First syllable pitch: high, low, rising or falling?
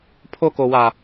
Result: high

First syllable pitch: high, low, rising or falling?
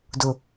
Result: low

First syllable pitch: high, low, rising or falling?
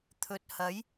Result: low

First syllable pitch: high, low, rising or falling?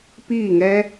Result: falling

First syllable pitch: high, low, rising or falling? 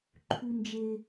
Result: high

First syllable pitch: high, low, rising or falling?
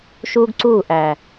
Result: high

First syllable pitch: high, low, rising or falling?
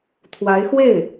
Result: rising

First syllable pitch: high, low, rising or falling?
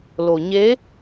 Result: low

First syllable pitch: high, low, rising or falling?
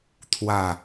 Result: falling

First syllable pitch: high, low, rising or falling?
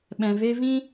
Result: low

